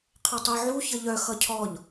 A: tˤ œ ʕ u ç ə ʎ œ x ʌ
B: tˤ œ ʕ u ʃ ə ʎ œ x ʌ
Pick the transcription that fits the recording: A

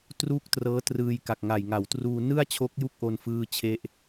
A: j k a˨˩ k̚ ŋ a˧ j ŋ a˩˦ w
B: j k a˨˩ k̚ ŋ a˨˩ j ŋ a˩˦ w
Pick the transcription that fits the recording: B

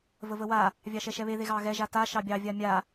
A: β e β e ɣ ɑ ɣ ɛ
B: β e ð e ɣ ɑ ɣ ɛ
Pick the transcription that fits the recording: B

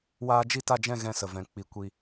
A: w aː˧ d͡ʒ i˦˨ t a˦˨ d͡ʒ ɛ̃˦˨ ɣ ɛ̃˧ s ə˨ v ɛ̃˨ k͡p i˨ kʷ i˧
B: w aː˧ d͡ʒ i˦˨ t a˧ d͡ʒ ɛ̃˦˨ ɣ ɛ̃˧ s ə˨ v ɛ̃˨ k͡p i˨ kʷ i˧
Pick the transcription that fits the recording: A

